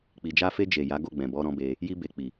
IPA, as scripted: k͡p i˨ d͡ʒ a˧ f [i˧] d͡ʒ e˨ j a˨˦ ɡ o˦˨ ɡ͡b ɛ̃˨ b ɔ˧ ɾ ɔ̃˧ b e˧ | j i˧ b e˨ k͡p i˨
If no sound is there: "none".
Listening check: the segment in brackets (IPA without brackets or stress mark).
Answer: e˧